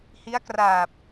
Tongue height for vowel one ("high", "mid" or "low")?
high